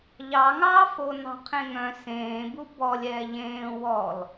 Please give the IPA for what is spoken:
ʎ ɑ ŋ ɑː f o n ɑ̤ qʰ ẽ ŋ œ̃ s ẽː b u b ɔ lʲ ɛː ʎ ẽː w ɔ l

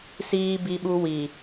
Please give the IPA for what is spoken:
s iː˦ b i˦ ɓ u˦ w i˨

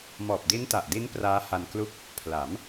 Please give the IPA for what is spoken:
m ɔː˨˩ p̚ d i˦˥ n t a˨˩ ʔ d i˦˥ n p r aː˦˥ h a˧ n k l u˥˩ k̚ | pʰ l a˩˦ m

